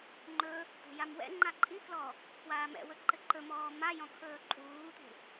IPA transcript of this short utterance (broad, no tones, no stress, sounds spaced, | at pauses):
ŋ͡ǃ ɵ | t̪ ṳ j a m w ɛ̰ ŋ͡ǃ a ǃʼ i k l ɔ | kʰ w aː m ɛ̰ w ɵ ǃ ɘ ǃ ɵ m ɔː m a j ɔ̃ kʰ ɵː ǃʼ uː t̪ ṳ